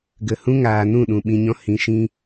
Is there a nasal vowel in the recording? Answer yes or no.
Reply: yes